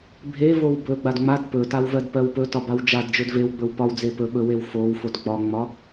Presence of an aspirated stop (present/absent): absent